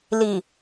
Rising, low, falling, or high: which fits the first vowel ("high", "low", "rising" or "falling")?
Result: low